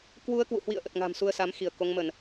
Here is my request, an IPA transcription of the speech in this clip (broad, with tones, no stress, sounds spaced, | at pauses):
k w u˧ ə̯ k w ṵ˧˨ h w ḭ˧˨ ə̯ ʔ ə˨˩ t̚ ŋ a̤˨˩ m s u˧ ə̯ s a˨˦ m x i˧˩ ə̯ k o˨˦ ŋ m ə˧˩˨ n